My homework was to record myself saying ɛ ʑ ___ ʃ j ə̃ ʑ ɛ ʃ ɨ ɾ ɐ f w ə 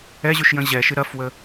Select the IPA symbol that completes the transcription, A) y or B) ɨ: A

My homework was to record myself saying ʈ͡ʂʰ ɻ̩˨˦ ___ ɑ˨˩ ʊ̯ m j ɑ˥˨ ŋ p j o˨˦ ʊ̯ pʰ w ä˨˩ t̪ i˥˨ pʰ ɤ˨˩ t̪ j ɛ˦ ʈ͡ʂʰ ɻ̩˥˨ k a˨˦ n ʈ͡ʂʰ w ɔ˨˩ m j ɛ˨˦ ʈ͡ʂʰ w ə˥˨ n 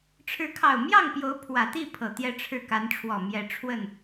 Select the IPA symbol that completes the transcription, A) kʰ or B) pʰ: A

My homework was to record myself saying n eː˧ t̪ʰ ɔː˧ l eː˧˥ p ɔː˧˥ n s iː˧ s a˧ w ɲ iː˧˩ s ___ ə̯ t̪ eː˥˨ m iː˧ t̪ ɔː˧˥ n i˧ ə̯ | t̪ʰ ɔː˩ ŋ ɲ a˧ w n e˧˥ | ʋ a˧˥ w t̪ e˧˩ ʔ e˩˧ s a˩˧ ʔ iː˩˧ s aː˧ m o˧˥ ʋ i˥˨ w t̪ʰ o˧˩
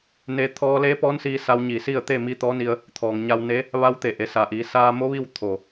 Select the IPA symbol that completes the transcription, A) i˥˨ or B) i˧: A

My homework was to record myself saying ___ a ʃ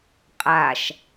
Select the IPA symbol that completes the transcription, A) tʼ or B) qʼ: B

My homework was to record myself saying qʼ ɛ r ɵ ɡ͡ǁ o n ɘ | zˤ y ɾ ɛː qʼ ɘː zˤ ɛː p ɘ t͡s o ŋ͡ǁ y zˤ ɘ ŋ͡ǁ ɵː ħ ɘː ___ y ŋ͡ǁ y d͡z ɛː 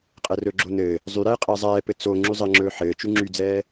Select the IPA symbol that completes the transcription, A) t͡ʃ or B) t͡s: A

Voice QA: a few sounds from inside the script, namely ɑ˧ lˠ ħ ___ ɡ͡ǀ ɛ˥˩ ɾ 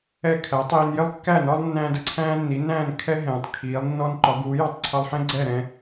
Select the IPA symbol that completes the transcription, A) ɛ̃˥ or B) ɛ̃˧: A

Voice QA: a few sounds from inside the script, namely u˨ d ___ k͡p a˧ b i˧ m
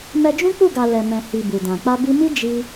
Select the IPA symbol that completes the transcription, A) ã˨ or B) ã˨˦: A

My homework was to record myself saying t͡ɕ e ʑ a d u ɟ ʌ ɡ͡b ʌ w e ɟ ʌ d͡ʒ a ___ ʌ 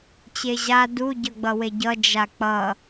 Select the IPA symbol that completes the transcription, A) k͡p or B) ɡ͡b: A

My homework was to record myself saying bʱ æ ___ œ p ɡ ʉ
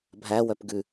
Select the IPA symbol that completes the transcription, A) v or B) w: B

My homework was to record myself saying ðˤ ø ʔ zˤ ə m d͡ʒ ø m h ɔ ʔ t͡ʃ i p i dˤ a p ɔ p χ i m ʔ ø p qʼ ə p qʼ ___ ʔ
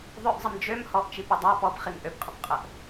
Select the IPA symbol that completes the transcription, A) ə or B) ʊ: A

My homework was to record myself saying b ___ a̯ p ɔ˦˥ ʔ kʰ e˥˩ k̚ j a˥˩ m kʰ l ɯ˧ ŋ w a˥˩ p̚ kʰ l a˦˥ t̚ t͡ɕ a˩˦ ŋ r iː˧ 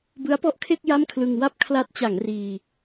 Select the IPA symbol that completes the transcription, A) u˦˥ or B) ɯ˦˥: B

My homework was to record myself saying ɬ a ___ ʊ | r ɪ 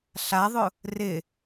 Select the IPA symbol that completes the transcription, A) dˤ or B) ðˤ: B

